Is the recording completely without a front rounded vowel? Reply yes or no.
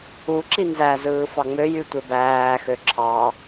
no